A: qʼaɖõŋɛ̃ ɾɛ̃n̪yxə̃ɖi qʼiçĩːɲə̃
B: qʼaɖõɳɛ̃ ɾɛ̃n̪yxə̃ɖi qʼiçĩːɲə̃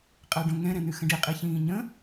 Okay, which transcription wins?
A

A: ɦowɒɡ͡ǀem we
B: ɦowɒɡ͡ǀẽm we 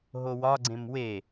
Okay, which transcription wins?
B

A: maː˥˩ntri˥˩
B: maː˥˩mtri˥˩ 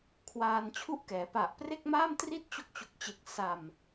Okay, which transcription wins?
B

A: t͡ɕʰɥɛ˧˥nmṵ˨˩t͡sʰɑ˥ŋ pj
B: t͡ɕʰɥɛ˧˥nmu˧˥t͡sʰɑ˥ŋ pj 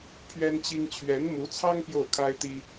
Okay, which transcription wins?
B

